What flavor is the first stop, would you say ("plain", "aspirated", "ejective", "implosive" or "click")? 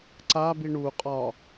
click